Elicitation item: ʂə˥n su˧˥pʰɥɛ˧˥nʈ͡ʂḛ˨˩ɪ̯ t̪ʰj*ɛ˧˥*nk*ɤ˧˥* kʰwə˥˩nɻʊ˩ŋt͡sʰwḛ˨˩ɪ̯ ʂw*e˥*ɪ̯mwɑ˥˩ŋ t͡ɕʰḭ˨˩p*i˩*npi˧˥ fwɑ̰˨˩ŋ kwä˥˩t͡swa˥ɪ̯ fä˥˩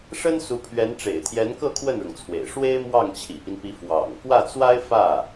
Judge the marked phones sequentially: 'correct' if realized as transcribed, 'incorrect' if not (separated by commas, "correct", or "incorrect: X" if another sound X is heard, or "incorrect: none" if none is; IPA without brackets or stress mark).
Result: correct, incorrect: ɤ˥˧, correct, incorrect: i˦